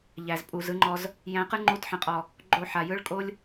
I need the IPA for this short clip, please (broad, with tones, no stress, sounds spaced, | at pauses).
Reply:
ʎ æ˨ z pʼ u˨ z ɯ˦ ŋ͡ǃ ɔ˧ z | j æ̃˧ q ɯ˦ ŋ͡ǃ u˧ t ħ ə̃˨ qʼ ɔ˨ | ɡ͡ǃ o˦˨ ħ a˨ j ɯ˦ ɭ kʼ o˦ lʲ